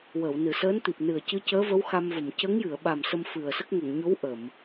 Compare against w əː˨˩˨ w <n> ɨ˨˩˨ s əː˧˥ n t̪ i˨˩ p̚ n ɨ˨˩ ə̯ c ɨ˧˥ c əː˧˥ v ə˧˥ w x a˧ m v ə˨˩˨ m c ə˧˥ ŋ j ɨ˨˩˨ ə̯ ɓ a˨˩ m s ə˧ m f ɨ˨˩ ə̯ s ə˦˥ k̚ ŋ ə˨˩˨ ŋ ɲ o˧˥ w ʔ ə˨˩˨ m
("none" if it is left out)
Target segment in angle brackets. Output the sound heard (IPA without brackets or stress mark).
n